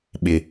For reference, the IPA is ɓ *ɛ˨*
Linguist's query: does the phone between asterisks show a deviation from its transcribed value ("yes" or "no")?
yes